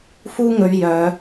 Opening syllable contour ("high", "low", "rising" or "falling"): high